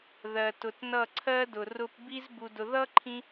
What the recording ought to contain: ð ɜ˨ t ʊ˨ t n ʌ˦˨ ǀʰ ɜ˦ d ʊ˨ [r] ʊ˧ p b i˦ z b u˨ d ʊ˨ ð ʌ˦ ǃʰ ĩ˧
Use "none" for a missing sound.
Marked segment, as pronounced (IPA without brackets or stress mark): r